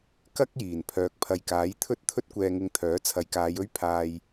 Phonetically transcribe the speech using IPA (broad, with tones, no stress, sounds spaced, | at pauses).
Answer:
k ɐ˥ k̚ j iː˨˩ n pʰ œː˨ k̚ pʰ ɐ˨ j k aː˨˥ j t̪ʰ ɵ˥ t̚ t̪ʰ ɵ˥ t̚ kʷ ɛː˧ ŋ ɪ˧ ŋ t̪ʰ œː˨˥ t͡sʰ ɐ˨˧ j k aː˨˧ j ɵ˥ ɥ pʰ aː˧ j